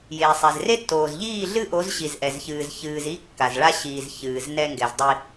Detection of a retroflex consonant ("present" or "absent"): present